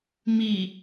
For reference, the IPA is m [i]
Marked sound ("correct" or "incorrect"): correct